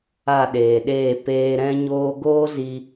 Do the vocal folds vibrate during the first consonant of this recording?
yes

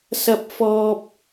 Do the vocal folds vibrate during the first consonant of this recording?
no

